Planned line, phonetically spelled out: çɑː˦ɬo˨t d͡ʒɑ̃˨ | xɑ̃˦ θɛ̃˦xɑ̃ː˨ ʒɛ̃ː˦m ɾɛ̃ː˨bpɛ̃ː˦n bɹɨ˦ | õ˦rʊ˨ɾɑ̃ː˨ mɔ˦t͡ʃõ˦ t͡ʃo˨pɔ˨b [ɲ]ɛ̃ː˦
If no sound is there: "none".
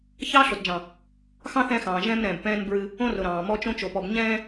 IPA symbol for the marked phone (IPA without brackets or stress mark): ɲ